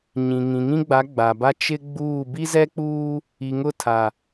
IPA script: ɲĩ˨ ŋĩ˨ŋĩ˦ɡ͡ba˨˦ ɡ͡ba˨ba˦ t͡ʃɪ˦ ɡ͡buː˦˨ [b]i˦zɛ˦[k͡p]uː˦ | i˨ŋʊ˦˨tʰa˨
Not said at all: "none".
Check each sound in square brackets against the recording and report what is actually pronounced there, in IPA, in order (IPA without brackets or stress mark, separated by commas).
b, k͡p